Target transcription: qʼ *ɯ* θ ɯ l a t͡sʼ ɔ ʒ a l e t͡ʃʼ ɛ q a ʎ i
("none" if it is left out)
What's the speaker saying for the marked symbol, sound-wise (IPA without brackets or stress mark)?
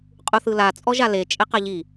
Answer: u